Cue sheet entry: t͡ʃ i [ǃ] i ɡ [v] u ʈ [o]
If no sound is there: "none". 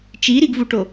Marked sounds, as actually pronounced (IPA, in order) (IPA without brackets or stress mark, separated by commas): ɾ, v, o